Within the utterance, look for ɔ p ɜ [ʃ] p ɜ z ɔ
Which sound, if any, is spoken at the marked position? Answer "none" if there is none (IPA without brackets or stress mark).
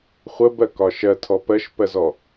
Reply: ʃ